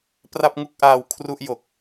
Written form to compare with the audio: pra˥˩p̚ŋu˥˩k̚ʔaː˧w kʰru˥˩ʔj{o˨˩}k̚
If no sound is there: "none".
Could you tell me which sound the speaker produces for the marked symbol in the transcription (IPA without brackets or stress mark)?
o˨˩